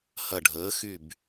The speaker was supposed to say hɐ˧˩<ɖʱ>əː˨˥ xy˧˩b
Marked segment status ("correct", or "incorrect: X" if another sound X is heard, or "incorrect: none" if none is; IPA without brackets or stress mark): correct